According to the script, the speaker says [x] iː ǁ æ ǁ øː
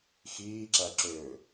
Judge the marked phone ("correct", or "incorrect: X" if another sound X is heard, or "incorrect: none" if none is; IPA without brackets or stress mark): correct